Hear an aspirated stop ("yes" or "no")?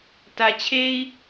yes